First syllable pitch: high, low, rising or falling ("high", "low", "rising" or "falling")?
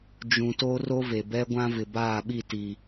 low